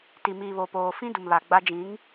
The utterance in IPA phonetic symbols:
t i˨ m iː˨ β o˨ p oː˨ f ĩ˦ d u˨ m β a˨ ɡ͡b a˦ d͡ʒ ĩ˨˦ ŋ

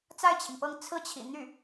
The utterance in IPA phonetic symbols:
t͡s a˥˩ ɪ̯ t͡ɕʰ i˩ ŋ p ɤ˥˧ ŋ t͡sʰ ɹ̩˥˩ t͡ɕʰ ḭ˨˩ n̪ y˥˩

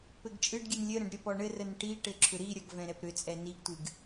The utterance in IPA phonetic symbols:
p ɘ ɡ t͡ʃʼ ɨ ɖ ɡʲ ɨ n lʲ ɘ ɾ ə̃ ɖ ɾʲ ɔ p ɔ ɳ ɘ r ə n ʈ i ʈ ɘ ǁʰ ʏ ɾ i ɾʲ ʌ ɡ v ɛ̃ ɾ ɛ p ɾ ʏ t͡sʼ ɛ n i ɡ tʷ ɨ ɡ

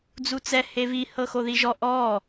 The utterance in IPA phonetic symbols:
d͡z u t͡s ɛ h e v i h ɤ x o ð i ʒ ɔ ʔ ɔ

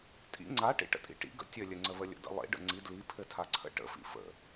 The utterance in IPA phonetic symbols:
tʼ ḭ ŋ͡ǀ a ʈ ḭ ʈ ə̰ tʼ ḭ ʈ ḭ ɡ ə̰ tʲ ɘ lʲ ɘ ŋ͡ǀ ə β ə lʲ ə̰ d ə̰ lˠ ḭ ɖ ə̰ ŋ͡ǀ i d l i pʰ ɘ tʰ a ǀʰ ə̰ ʈ ə̰ f ḭ f ə̰

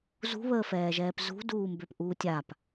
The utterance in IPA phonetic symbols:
z ṳ β əː f ɛː ʒ ɛː p z ṳ d uː m b ø p ʔ uː tʲ a p

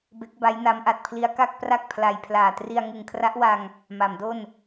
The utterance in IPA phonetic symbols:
b e˦˥ k̚ b a˦˥ j n a˦˥ m ʔ a˨˩ t̚ pʰ l i˦˥ a̯ k a˥˩ k̚ p r a˥˩ k̚ pʰ l a˧ j pʰ l aː˨˩ t r i˧ a̯ ŋ ɯ˨˩ ŋ kʰ r a˦˥ ʔ w a˧ ŋ | m a˩˦ m d o˥˩ n

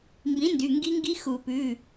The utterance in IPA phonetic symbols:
m b ĩ˩˥ n d y˩˧˩ ŋ ɡ i˧˥ ŋ ɡ i˧˥ x u˨˩˦ p ʉ˩˧˩

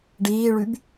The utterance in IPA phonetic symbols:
ɖ iː ɭ y b

